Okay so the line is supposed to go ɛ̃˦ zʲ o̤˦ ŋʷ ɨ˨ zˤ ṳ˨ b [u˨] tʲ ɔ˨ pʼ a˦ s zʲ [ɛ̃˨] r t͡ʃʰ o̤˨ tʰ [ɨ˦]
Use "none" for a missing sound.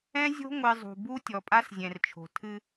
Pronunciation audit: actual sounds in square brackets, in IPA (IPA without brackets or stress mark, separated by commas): u˦, ɛ̃˨, ɨ˦